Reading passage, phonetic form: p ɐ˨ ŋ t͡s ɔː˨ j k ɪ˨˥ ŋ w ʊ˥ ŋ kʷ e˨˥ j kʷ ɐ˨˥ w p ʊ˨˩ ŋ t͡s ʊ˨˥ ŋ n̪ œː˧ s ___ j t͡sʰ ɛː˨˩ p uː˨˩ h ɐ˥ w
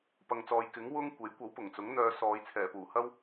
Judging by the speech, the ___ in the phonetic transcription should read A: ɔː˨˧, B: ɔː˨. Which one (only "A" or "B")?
A